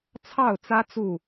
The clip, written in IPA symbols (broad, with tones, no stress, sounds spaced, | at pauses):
t͡sʰ ɑ˥˨ ʊ̯ t͡s ä˦ t͡s u˥˨